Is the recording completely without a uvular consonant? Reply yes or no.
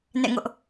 yes